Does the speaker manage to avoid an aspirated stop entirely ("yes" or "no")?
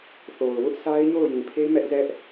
no